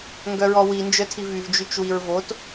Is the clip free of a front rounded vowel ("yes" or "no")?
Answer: no